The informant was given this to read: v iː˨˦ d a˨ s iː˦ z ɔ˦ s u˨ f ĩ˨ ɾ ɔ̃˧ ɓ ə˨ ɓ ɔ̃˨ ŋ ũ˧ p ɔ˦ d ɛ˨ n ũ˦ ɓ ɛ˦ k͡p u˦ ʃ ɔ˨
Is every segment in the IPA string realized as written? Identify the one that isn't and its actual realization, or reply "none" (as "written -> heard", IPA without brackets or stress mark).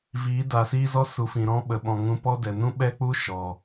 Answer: none